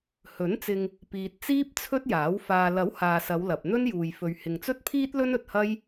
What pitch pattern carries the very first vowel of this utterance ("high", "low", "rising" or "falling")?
rising